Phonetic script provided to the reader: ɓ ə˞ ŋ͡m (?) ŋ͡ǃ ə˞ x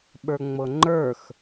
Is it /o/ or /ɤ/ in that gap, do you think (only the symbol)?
ɤ